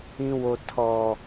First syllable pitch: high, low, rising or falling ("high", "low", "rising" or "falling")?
high